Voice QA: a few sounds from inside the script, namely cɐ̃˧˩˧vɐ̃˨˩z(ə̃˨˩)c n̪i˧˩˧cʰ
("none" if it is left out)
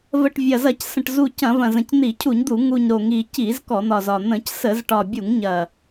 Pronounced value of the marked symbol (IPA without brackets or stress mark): ə̃˨˩